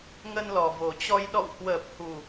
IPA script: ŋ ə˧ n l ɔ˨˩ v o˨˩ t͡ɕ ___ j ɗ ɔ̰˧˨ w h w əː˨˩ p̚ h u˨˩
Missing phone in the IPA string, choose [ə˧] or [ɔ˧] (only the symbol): ɔ˧